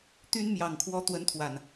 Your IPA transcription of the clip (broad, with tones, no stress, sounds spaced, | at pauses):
t̪ y˦ n m j ɑ˨˩ ŋ kʰ w ɔ˨˦ t̪ w ə˨˦ n t̪ʰ w a˨˩ n